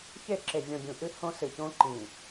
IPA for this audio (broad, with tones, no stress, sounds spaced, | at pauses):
ç e˦˨ ǁ e˨ vʲ ɔ̃˨ bʲ ũ˨ ʔ ɨ˦ h õ˦ s ɨ˨ ç õ˦ ǃ ĩ˨